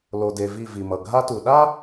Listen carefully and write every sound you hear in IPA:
l o˨ d e˨ v i˦˨ v i˨ m ʌ˨ ɡʱ a˦ t u˨ ɗ a˦

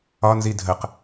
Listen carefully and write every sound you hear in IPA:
ɒ n z i dʱ ə q

